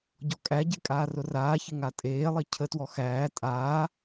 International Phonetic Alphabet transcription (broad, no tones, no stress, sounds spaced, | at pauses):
ɟ ɔ kʼ æ ɟ e kʼ aː r ʊ r aː ç ɪ ŋ a tʼ eː lˠ i cʰ ə t w ɔ x æː tʼ aː